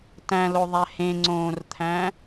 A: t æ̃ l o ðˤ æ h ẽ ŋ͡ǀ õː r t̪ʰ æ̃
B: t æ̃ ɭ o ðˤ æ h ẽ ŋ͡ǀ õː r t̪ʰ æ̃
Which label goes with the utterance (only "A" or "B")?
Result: A